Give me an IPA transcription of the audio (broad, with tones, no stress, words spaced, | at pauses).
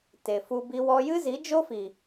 te˨fu˧ bi˧wɔ˧jɨ˦ zi˨˦ d͡ʒo˦fi˨